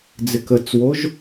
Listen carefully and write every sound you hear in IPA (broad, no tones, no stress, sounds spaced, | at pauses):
d͡z ɪ k ə t͡s w o ʒ